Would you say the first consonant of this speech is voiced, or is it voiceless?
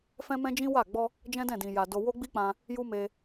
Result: voiceless